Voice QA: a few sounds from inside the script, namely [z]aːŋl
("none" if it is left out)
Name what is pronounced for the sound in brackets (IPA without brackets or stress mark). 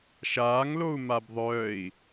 ʃ